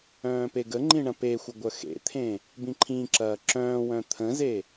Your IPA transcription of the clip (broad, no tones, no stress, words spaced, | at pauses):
œ̃ːpeɡəŋ͡ǃĩ ɳɐ̃pexʷə ɡʷœxḛt̪ʰẽ | bĩǃʰĩǁɐː ǁœ̃ːwœ̃ t̪ʰə̃ze